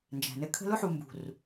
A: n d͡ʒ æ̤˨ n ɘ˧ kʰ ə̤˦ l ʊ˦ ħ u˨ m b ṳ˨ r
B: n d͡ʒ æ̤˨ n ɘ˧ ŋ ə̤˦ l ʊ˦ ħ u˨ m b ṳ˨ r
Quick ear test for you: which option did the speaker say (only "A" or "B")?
A